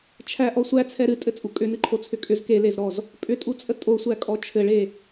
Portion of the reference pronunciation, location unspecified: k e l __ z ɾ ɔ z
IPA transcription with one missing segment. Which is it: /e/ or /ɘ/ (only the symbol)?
e